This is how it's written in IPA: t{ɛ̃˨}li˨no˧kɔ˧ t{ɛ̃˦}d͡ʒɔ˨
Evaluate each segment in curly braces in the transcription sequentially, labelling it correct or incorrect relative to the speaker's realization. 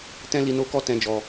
incorrect: ɛ̃˧, incorrect: ɛ̃˨

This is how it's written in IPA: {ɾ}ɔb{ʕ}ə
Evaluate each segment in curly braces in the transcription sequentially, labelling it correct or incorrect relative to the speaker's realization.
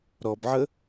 correct, correct

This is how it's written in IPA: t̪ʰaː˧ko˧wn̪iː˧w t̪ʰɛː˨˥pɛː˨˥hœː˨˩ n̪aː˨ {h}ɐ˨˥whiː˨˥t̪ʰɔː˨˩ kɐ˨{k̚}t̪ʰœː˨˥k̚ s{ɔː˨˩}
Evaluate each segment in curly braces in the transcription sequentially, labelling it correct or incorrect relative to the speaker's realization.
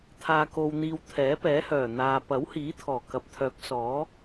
incorrect: p, incorrect: p̚, incorrect: ɔː˨˥

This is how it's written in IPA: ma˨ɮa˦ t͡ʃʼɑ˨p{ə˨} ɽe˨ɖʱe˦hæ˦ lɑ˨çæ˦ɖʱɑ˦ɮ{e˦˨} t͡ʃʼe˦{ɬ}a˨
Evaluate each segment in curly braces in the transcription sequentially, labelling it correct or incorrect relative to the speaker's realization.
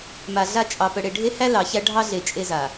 correct, incorrect: e˨, incorrect: z

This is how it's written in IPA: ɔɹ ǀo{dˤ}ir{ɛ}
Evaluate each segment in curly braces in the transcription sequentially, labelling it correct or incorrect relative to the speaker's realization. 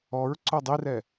correct, correct

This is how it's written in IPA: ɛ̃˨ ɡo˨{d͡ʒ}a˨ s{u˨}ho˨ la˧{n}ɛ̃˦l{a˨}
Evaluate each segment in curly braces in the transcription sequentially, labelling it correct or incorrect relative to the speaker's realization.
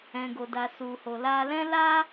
incorrect: d, correct, incorrect: l, incorrect: a˦

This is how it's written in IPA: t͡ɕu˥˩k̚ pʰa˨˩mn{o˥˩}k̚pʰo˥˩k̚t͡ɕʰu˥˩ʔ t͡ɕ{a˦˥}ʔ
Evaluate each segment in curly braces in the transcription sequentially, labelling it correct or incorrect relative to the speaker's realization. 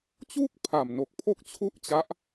incorrect: o˨˩, correct

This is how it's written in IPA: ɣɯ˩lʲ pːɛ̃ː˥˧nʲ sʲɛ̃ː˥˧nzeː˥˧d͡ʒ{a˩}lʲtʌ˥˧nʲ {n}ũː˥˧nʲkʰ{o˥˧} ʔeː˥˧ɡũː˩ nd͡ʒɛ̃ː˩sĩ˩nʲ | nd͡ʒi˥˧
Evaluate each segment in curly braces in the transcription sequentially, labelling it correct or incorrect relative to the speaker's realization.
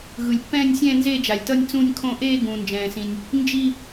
correct, incorrect: t͡s, incorrect: õ˥˧

